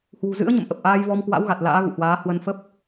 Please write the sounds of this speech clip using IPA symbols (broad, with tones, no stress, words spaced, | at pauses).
hwṳ˨˩zɨ̰˧˥ə̯ɲə̰˧˨m ʔə˨˩p̚ʔaː˧jvɔ˧m kwa̰˧˥wɣa˨˩t̚ la̰ː˧˥ɣṵ˧˨hwaː˨˦ hwə˧nfə˦˥p̚